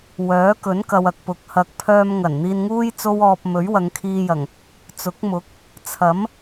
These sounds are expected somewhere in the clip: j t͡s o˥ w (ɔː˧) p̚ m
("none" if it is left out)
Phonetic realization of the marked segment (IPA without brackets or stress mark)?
ɔː˧